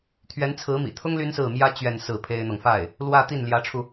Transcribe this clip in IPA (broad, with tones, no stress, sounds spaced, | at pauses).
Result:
t̪ʰ ɥ ɛ˧˥ n t͡sʰ ɹ̩˧˥ m ḭ˨˩ t̪ʰ ʊ˥ ŋ l y˥ n s ɹ̩˥˩ m j ä˥ t͡ɕ ɥ ɛ˥˧ n s ɹ̩˥˩ pʰ e˥ ɪ̯ n̪ ɤ˨ ŋ f a˥˩ ɪ̯ | l w ä˥˧ t̪ i˥˩ n l j ä˧˥ ʈ͡ʂʰ u˧